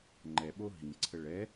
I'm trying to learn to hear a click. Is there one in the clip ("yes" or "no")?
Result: yes